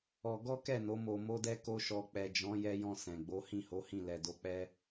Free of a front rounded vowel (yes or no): yes